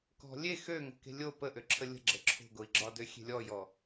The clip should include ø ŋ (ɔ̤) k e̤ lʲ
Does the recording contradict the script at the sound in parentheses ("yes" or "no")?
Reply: yes